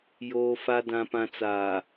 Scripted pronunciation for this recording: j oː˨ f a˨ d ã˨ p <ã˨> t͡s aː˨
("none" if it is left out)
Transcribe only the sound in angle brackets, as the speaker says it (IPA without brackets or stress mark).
ã˨